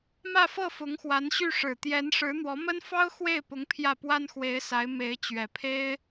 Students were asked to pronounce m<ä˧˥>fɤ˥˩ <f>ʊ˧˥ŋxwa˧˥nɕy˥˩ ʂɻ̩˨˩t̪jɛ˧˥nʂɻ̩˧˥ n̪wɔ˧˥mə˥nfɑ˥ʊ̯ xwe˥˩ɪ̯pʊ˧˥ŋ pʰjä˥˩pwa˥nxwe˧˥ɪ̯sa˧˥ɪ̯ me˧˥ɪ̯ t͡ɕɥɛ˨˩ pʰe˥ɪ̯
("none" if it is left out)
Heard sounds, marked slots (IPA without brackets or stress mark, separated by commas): ä˥˧, f